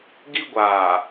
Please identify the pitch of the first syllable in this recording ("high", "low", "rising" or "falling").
high